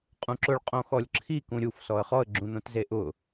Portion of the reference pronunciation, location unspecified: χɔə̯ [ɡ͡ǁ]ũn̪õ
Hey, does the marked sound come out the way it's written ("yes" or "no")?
yes